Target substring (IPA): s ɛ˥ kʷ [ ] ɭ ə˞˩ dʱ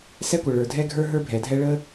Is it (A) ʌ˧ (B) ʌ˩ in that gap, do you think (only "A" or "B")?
B